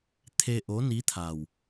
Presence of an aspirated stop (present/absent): present